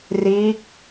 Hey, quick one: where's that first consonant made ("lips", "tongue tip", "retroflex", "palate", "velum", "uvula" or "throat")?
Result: tongue tip